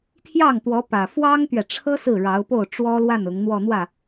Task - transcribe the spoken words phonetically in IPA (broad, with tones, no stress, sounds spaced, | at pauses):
t̪ʰ j ɑ˥˩ ŋ t̪ w ɔ˧˥ p ä˨˩ f w ɑ˥ ŋ t̪ ɥ ɛ˨ ʈ͡ʂʰ ɤ˥ s ɹ̩˥˩ ɻ ɑ˧˥ ʊ̯ p o˥˩ ʊ̯ ʈ͡ʂ w ɔ˥ l w a˥˩ n ʊ˧˥ ŋ n̪ w ɔ˥˧ n̪ w ä˥˩